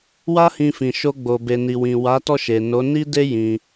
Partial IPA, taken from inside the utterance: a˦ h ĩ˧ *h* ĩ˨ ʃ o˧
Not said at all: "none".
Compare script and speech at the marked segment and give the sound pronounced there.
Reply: f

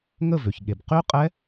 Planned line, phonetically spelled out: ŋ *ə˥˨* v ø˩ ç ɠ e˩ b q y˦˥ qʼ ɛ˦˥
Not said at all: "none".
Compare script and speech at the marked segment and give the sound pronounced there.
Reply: ə˥˨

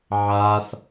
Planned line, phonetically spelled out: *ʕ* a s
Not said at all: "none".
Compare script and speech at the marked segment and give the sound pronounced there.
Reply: ʕ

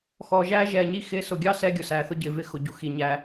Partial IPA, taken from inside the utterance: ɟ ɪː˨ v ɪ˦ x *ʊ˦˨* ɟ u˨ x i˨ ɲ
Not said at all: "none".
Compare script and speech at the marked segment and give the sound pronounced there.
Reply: ʊ˨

